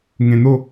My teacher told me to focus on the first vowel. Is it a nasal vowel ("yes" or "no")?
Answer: yes